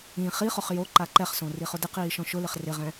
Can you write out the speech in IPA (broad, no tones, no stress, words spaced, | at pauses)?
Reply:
ĩ χiχʊχ jo ǃaǃɛχsõ riχʊdɪqiː ʃɔ̃ʃʊlɪχ rɪʁɛ̃